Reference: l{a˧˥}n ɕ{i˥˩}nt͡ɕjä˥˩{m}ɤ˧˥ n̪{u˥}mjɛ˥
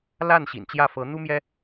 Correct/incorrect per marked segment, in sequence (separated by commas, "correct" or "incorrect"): incorrect, incorrect, incorrect, correct